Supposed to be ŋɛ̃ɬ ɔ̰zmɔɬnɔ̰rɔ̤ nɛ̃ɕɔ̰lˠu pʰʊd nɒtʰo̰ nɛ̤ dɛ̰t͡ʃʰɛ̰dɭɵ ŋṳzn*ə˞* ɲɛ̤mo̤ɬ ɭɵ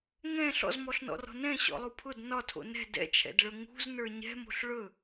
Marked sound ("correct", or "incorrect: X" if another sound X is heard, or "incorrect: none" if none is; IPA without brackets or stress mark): correct